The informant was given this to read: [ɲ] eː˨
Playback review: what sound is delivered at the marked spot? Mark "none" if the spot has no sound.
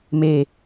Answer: m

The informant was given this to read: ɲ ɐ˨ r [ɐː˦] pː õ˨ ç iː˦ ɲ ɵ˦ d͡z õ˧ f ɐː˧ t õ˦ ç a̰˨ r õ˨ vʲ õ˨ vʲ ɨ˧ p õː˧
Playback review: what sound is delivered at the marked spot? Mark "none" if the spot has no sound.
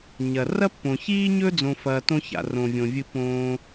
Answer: ɐ˦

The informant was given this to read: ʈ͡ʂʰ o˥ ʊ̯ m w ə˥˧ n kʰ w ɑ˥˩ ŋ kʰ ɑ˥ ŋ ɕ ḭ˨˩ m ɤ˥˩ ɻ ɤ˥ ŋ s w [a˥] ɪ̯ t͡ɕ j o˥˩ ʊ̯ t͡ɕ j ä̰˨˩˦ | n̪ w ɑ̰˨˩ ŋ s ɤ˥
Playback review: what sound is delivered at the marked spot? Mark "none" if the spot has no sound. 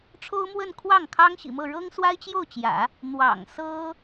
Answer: a˥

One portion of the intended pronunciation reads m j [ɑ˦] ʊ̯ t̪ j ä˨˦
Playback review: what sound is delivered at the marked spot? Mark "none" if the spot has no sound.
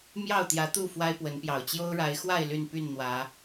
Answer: ɑ˥˨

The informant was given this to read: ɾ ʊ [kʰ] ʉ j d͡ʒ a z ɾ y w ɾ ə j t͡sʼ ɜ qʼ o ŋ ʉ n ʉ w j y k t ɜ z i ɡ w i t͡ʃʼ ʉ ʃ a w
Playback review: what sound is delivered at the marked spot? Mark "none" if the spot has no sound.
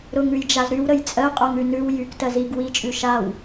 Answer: ŋ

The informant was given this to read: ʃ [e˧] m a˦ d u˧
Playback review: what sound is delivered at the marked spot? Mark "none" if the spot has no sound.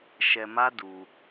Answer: ɛ˧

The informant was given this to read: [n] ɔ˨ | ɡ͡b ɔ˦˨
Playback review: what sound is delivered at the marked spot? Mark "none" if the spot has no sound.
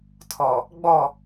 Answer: tʰ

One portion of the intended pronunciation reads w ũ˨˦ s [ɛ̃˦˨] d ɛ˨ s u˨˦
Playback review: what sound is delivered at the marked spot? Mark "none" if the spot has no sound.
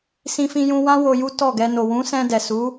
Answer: ɛ̃˧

